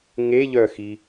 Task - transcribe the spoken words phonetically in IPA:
ŋ e ʎ œ x i

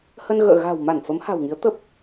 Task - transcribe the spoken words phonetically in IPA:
h ə˧ n ɣ ə̰ː˧˨ ɣ a̤˨˩ w m a˧˩ n f ə˨˦ m h a̤˨˩ w ŋ i˨˦ ə̯ t̪ ə˦˥ p̚

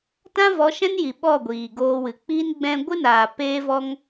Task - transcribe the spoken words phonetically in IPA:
t ã˦ v ɔ˨˦ ʃ ɛ̃˦ n j i˨ ɓ ɔ˦˨ ɡʷ iː˨ ɡ oː˧ w ɨ˨ k͡p iː˦ n ɡ͡b ɛ̃˦ ɡʷ ɨ˦ n aː˨ p eː˦ v ɔ˦ ŋ

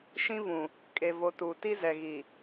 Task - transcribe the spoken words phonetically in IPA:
ʃ ĩ˦ v ũ˨ | kʼ e˨ v o˨ t u˨ t i˦ z ɛ˨ ɣ i˨

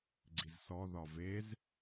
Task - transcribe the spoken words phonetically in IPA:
ɡ͡ǀ i z s ɔ ð ɒ v e z

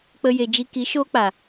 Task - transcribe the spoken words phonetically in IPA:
k͡p ə˦ j e˧ d͡ʒ i˦ k i˨˦ ʃ oː˦ k͡p a˨

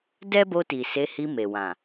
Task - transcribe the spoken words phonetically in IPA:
d ɛ˦ b o˧ t i˨ s e˨˦ h i˧ m e˨ w ã˨

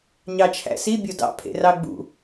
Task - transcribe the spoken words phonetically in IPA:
ɲ ɑ t͡ʃʰ æ̰ s i bʲ o d ɑ̰ pʰ ḛ r ɑ ɡ͡b ṵ

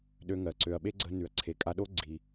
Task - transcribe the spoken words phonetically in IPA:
ɗ ø˧ ŋ ɜ˩ ǀ ø˩ ɐ̯ ɓ e˥ ɡ͡ǀ ə˧ n ʉ˩ ɐ̯ ǀʰ e˩ kʼ a˧ ɗ o˥ ɡ͡ǀ i˩

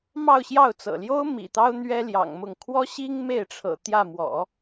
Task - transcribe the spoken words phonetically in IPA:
m ɑ˥˧ ʊ̯ ɕ j ɑ˥˩ ʊ̯ t͡s ɤ̰˨˩ l j o˥ ʊ̯ m ḭ˨˩ t̪ ɑ˥ ʊ̯ n̪ ɥ ɛ˥ l j ɑ̰˨˩ ŋ m ʊ˥˩ ŋ kʰ w ɔ˥ ɕ i˥ ŋ m e˥˩ ɪ̯ ʈ͡ʂʰ ɤ̰˨˩ t̪ j ä˥˩ m w ɔ̰˨˩˦

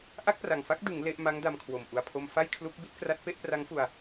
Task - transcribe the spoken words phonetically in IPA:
ʔ a˥˩ k̚ p r a˨˩ ŋ f a˦˥ k̚ d ɯ˩˦ ŋ l e˦˥ ʔ m a˦˥ ŋ d a˧ m kʰ w o˨˩ m ʔ u˨˩ a̯ pʰ o˧ m f a˥˩ j kʰ l u˦˥ k̚ b i˥˩ t̚ k r a˦˥ t̚ p e˥˩ ʔ p r a˦˥ ŋ f u˧ a̯

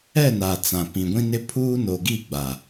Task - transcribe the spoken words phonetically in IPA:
ɛ˦˨ n a˨ t͡s ã˨ p ĩ˨ ɡʷ ĩ˦ n ɪ˦ pʰ uː˦ n o˨ ɡ i˦˨ ɡ͡b a˨

